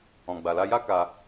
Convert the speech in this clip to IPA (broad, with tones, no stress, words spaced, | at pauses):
ɔ̃˧ɡ͡ba˧la˦ ja˦ ka˧